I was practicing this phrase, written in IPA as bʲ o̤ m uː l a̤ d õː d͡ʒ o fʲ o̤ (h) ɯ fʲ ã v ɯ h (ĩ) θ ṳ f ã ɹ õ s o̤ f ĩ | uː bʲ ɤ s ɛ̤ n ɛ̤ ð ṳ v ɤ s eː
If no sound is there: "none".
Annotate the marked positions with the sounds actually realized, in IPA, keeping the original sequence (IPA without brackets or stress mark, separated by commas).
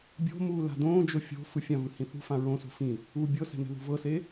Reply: f, ĩ